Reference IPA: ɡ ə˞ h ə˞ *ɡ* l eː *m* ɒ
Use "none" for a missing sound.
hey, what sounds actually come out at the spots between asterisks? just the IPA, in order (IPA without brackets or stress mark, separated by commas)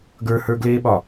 ɡ, ɓ